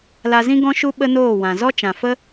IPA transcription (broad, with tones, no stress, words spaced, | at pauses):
la˧zĩ˦ɡɔ̃˦ʃu˦ ɓə˦noː˦˨wã˨ zɔ˦t͡ʃã˨fə˦